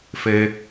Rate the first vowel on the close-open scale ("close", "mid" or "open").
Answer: mid